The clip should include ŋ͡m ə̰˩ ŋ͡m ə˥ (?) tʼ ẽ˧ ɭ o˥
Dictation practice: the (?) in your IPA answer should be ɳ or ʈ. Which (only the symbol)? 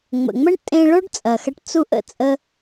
ɳ